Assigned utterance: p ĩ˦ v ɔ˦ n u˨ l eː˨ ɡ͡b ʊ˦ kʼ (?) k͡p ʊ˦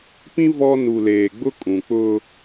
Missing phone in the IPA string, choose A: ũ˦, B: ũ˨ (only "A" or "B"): B